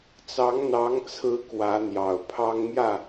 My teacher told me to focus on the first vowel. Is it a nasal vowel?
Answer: no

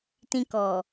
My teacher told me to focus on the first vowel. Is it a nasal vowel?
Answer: yes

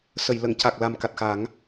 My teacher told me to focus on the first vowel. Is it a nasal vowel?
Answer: no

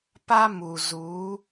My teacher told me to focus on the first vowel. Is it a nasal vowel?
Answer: no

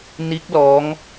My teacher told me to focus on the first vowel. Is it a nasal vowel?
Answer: no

